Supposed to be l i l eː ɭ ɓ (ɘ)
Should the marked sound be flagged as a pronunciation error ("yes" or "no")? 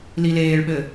no